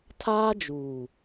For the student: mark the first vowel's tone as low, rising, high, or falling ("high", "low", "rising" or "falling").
high